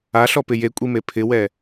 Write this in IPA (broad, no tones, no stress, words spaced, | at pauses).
aɬɔpɪ jekʷʼime pʰɪwɛ